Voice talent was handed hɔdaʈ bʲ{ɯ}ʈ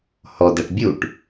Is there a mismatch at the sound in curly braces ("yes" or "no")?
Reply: yes